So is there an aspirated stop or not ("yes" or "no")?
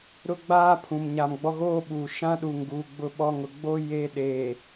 yes